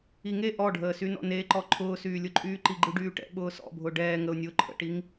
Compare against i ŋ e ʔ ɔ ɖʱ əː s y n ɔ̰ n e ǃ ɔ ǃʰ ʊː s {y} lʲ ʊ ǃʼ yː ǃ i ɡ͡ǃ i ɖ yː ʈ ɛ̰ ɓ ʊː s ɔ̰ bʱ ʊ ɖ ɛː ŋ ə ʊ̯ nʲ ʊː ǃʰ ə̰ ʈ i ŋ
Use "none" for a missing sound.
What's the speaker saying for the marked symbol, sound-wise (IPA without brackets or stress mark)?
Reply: yː